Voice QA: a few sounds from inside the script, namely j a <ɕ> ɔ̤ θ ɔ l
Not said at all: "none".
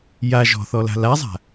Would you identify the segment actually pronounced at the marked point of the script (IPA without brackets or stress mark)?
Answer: ʒ